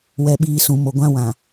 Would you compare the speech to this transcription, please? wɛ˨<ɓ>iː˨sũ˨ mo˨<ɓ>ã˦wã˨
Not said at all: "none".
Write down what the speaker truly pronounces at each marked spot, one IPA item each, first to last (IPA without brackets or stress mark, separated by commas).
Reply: ɓ, ɡʷ